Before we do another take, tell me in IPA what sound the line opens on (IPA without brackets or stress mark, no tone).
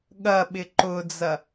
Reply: ɠ